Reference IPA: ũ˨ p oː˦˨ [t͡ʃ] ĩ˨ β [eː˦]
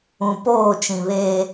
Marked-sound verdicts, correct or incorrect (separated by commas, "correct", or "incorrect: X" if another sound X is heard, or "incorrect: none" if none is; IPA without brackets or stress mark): correct, correct